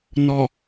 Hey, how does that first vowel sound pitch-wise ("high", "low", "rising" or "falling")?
low